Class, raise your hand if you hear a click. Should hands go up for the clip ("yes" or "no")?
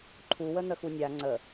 yes